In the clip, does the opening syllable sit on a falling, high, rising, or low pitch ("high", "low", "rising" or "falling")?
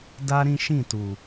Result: high